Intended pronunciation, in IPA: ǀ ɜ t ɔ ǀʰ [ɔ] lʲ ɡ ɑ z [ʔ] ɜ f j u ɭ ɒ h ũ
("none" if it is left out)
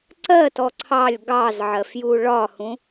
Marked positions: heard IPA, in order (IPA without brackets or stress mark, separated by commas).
ɑ, ʕ